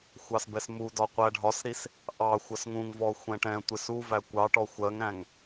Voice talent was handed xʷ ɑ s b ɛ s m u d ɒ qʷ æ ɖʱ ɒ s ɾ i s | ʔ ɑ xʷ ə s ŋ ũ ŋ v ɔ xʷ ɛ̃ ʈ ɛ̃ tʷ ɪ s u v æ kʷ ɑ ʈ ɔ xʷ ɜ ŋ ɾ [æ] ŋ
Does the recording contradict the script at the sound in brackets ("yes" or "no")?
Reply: yes